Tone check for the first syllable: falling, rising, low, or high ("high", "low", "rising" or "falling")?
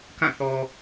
falling